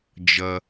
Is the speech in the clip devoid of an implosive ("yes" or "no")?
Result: yes